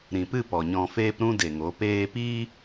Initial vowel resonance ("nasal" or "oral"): nasal